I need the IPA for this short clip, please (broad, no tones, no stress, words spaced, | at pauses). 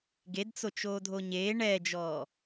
ɡedt͡so t͡ʃoːdʱoɲeː ɳɛd͡ʒɔː